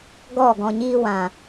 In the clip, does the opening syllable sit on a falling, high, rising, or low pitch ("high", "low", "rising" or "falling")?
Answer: falling